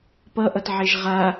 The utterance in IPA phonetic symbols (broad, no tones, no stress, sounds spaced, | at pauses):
p ʌ ʔ ʌ t ʕ e ʒ ʁ a